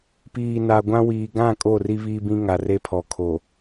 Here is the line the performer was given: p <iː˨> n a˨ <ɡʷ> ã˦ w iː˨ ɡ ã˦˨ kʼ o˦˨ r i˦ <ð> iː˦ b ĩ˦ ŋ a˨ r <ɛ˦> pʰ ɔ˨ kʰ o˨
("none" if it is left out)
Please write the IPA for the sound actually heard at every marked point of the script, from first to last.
iː˨, ɡʷ, β, e˦

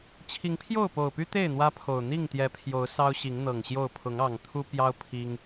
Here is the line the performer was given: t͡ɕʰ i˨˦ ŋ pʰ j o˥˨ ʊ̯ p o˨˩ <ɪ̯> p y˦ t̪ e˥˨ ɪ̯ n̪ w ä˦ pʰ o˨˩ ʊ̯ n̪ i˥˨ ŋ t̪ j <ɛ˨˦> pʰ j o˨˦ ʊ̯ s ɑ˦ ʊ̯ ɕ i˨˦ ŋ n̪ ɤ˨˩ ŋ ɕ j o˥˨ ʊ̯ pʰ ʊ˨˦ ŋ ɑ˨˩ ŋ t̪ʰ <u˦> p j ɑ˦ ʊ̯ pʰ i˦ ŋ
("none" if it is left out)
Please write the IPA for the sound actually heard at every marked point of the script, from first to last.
ʊ̯, ɛ˨˦, u˦

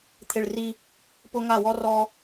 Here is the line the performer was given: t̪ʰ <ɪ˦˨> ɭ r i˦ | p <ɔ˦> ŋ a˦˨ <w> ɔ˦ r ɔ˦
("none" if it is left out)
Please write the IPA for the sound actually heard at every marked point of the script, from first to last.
ɪ˦˨, ʊ˦, w

